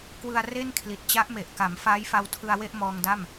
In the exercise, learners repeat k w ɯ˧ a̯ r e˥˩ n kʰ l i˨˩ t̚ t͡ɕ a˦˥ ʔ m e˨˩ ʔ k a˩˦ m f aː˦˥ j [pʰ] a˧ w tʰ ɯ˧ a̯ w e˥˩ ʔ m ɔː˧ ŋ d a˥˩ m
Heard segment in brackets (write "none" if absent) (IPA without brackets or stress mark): f